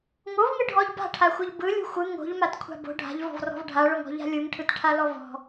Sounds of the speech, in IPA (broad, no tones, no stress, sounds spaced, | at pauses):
ŋ o v ŋ ɯ ɖʱ ɔ ʎ b a̤ ʈʰ a xʷ ɯ ʎ b ɯ lʲ o̤ xʷ ɯ ŋ o̤ ʎ m a t kʷʰ a̤ b o̤ ɖʱ a̤ ʎ v ɔ̤ v r ɔ̤ v ɖʱ a ɭ o ŋ ɔ̤ ʎ a̤ lʲ ɯ ŋ ʈʰ ɯ t ʈʰ a l ɔ v ɔ̤